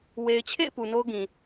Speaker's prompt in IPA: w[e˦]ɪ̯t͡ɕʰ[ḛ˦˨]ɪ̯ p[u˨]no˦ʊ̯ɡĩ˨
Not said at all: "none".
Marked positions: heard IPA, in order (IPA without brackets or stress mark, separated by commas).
e˨, ḛ˦˨, u˨